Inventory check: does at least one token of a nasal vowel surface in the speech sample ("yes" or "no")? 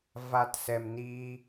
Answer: no